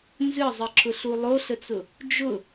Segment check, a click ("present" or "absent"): present